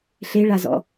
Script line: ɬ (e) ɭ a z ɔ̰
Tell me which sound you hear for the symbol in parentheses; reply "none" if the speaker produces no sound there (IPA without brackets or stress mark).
e